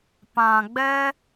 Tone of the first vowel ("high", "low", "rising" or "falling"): low